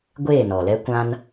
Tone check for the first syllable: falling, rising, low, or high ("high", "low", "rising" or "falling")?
falling